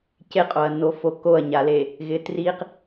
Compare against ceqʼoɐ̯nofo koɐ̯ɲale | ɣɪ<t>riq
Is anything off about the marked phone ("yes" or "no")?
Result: no